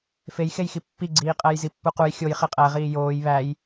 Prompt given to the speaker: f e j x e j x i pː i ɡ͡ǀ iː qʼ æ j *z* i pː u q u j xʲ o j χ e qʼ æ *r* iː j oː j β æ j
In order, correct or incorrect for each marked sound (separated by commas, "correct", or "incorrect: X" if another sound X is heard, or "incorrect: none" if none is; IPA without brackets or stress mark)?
correct, incorrect: ʁ